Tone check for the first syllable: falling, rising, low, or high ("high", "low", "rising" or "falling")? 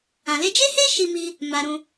low